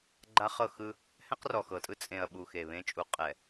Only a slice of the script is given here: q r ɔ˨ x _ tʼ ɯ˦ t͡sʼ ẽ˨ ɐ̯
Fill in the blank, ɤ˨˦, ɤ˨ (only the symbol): ɤ˨